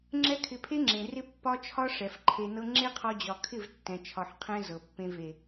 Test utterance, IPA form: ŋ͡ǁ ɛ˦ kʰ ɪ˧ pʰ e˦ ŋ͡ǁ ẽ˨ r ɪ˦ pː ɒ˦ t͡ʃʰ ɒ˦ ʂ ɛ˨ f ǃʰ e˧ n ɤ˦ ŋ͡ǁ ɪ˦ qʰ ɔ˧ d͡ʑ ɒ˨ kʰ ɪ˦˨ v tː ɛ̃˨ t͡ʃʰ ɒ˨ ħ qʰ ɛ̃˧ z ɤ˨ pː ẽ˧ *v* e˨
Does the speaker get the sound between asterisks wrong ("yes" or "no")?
no